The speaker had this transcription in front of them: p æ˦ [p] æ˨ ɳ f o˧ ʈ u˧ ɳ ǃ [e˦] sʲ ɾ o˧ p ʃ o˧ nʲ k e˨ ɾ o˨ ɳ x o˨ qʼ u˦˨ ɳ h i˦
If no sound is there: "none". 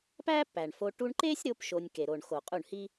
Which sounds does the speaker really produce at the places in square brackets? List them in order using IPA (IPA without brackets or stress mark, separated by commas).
p, e˦